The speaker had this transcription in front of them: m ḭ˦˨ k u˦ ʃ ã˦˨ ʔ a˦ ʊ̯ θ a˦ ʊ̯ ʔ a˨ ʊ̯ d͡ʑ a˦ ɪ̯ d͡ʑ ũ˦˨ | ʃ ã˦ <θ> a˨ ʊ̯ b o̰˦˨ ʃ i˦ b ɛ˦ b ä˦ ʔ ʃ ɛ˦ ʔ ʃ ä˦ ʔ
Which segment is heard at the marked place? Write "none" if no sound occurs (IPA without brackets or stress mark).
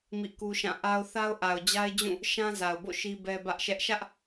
z